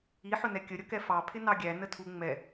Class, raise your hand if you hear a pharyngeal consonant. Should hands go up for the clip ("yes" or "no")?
yes